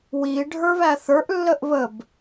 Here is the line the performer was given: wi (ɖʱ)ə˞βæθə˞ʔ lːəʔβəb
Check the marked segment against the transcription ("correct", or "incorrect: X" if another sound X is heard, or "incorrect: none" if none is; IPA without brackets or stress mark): correct